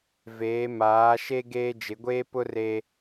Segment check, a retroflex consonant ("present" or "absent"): absent